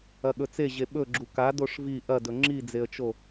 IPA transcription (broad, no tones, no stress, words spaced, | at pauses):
ɐɠɵt͡seʑe ɓɵɡ͡ǁu ka doʂvi ʔɐdɵ ŋ͡ǁid͡zeə̯t͡ʃo